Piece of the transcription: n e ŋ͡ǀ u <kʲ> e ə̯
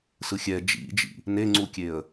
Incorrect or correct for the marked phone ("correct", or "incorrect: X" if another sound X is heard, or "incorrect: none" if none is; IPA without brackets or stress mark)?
correct